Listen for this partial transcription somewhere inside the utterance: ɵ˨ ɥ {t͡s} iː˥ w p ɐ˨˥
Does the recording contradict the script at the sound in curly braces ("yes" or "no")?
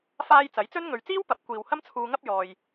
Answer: no